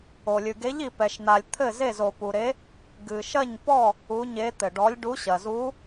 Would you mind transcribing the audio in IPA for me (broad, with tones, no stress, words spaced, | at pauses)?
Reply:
o˨lʲɨ˨ɡe˧˥ʎ i˨pɛ˨ʃn̪a˨lʲ t̪ʰɘ˦˨ze˦˨z o˨pu˨ɾe˧˥ | ɡɨ˨ʃɐ˦˨ɲpɔ˦˨ | u˧˥ɲe˧˥ t̪ɘ˨ɖɔ˧˥lʲɖu˧˥ɕɐ˨ zu˧˥